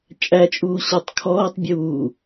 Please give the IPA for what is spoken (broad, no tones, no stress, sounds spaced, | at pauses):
t͡ʃʼ æ t͡ʃʼ uː ɕ ɔ tˤ kʰ ɔː tˤ bʲ uː